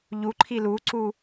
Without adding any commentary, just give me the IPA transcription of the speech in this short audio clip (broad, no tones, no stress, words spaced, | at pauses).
ʎuǃʰi luǀu